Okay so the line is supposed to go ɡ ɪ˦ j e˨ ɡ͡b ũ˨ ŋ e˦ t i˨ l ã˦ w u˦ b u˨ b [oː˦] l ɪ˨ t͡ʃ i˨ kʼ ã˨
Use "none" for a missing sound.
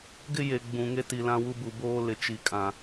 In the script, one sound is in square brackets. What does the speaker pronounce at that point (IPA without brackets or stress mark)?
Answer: oː˦